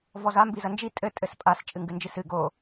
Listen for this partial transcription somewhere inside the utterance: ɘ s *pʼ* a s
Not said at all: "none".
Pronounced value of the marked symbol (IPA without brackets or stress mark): pʼ